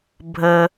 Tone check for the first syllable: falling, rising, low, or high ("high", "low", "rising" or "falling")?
low